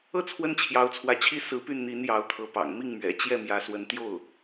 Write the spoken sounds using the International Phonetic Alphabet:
ɤ˥˩ t͡sʰ w ə˥ n t͡ɕʰ j ɑ˧˥ ʊ̯ t͡sʰ w ä˧˥ t͡ɕʰ i˥ s ɹ̩˧˥ p y˥˩ n n̪ i˧˥ n j ɑ˧˥ ʊ̯ t̪ʰ ɤ˧˥ p ɑ̰˨˩ ŋ m i˥˩ ŋ m ɥ ɛ̰˨˩ t͡ɕ j ɛ˥˩ m j ä˧˥ s w ə˧˥ n t̪ j o˥˩ ʊ̯

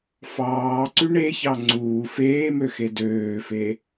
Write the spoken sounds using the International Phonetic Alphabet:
f ɑː ǀ y ɳ e ç ɑ ŋ͡ǀ uː f eː m ø x e d øː f e

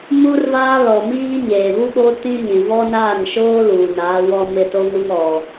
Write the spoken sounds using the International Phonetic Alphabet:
m u˦ r v aː˦ l ɔ˨ m iː˦ ɲ eː˨ v u˦ ɓ o˦ t ĩ˦ ɲ ĩ˨ v ɔ˦ n aː˦˨ n ʃ oː˦ l uː˨ n aː˨˦ w ɔ˦ m ɪ˦˨ t o˦ ŋ u˦ ŋ ɔ˦

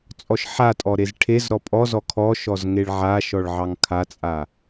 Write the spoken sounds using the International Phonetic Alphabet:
t͡sʼ ɔ ʃ ħ a tʼ ɔ ɾ e z ʈʰ e z ɾ ɔ pʼ ɔ z ɔ kʰ ɔ ʃ ɔ z ŋ e ɭ ʕ a ʃ ɔ ɭ ʕ ɑ ŋ kʰ a t͡sʼ a

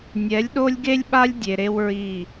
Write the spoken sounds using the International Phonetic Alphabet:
nʲ ɛ˨˦ lʲ ɗ o˦ lʲ ɡ e˦ lʲ ɓ a˦ lʲ dʲ e˨ ɾ e˦ w ɹ i˦˨

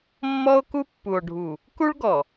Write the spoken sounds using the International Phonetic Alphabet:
mː ɔ˦ o̯ k u˦ pː u˨ o̯ ɖʱ u˨ | k u˦ ɭ ɡ ɔ˨

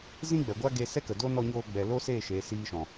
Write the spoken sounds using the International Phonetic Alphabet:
z ĩ˦ ɡ͡b ɛ˨ ɡʷ a˦ ɡ eː˧ s ɛ˦ k ə˨ d o˦ n ɔ˦ ɲ oː˦ ɡ͡b ɛ˧ l o˦ s eː˦˨ ʃ eː˨ s iː˧ ʃ ɔ̃˨

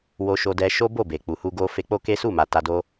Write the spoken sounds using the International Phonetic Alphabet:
w o˧ ʃ o˧ d ɛ˧ ʃ o˦ b o˦˨ b e˨ k͡p u˨ h u˧ ɡ o˧ f e˧ k͡p o˦ k e˦ s u˦˨ m a˨ t a˧ d o˦

